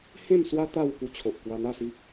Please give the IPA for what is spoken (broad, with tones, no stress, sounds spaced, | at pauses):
h ẽ˥˧ m s w a˦ t̪ a˥˧ w k u˧ t͡ɕʰ o˨ ʔ k w a˧ n̪ a˥˧ s i˦ k̚